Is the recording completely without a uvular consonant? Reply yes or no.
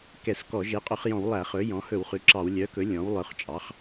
no